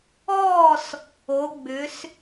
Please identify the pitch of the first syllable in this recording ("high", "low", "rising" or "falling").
falling